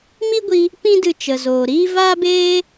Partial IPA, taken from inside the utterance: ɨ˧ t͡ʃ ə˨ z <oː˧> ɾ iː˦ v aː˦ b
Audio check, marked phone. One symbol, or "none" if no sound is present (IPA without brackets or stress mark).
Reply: oː˨